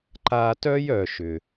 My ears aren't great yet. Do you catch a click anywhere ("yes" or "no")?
yes